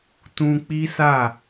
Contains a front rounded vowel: no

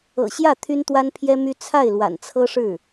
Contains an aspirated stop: yes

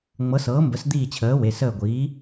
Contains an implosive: no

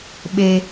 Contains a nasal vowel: no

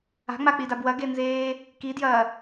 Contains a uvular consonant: no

